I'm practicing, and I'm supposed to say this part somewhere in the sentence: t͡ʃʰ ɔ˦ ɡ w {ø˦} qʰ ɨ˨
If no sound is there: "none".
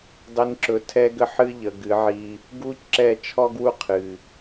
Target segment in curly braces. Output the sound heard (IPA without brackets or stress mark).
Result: u˦